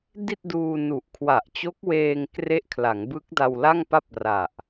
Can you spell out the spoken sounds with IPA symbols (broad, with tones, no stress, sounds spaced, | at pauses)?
d i˥˩ t̚ d uː˧ n u˨˩ ʔ kʰ w a˨˩ ʔ t͡ɕ o˦˥ k̚ w eː˧ ŋ k r e˦˥ ʔ kʰ l a˩˦ ŋ b ɯ˦˥ k̚ d a˧ w l a˥˩ ŋ p a˥˩ p̚ r a˨˩ ʔ